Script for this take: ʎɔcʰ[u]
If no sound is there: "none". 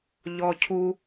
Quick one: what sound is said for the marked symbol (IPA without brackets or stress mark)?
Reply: u